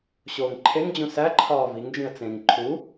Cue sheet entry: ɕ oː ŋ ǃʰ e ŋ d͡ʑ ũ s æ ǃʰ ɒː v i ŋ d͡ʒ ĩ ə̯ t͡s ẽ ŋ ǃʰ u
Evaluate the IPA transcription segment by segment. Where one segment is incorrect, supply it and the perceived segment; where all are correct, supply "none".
none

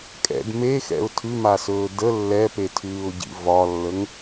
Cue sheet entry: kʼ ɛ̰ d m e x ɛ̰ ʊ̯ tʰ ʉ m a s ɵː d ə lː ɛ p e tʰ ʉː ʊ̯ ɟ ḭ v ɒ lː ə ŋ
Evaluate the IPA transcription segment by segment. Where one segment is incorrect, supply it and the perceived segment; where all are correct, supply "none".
none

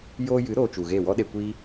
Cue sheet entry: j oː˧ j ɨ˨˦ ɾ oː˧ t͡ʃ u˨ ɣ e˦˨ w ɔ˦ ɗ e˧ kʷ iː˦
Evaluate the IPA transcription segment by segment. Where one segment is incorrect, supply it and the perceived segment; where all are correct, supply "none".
none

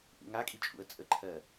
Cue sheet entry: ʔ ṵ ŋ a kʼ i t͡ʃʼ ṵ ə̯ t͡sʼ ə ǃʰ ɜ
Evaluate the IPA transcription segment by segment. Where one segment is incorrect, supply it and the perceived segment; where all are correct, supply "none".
none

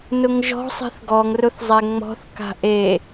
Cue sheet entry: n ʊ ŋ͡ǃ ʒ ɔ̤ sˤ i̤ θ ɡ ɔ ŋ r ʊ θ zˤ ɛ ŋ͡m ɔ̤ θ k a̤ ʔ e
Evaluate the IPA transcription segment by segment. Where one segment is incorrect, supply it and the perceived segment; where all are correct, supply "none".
ŋ͡ǃ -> ŋ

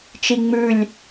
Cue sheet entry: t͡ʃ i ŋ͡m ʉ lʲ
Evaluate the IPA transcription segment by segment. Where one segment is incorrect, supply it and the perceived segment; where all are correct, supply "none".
none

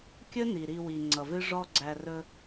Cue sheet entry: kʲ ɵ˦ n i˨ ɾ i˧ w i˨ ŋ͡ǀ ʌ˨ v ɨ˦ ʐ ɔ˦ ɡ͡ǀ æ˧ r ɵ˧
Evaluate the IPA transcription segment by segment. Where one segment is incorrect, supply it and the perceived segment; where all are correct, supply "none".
none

